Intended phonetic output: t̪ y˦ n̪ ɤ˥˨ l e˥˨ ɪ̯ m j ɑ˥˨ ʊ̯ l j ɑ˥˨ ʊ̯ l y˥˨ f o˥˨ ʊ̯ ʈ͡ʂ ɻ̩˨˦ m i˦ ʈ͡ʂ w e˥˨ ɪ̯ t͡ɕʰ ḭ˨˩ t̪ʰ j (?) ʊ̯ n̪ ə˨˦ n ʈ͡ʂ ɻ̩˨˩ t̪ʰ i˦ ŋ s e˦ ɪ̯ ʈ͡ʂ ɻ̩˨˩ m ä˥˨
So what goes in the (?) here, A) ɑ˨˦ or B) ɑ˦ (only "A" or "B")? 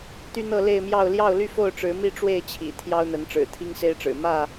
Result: B